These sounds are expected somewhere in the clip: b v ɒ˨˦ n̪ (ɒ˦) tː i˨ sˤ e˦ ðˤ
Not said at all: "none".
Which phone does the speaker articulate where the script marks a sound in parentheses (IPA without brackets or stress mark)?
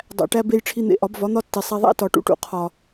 ɒ˦